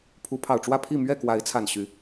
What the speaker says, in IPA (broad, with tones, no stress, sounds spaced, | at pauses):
pʰ u˨˦ pʰ ɑ˨˩ ʊ̯ ʈ͡ʂ w ä˥˨ pʰ i˥˨ m ɥ ɛ˥˨ k w a˨˦ ɪ̯ t͡sʰ a˨˩ n ɕ y˨˦